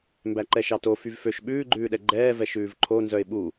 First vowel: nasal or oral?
oral